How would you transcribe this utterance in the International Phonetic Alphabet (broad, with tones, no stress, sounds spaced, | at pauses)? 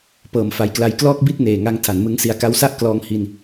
p ɤː˩˦ m f a˨˩ j k l a˦˥ j k l ɔː˥˩ k̚ b i˥˩ t̚ n eː˨˩ ŋ a˦˥ ŋ tʰ a˩˦ n m ɯ˦˥ ŋ s i˦˥ a̯ k a˧ w s a˥˩ ʔ k l ɔː˦˥ ŋ h i˧ n